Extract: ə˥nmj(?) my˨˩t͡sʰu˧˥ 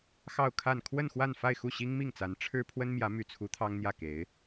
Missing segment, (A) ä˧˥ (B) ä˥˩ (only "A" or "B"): A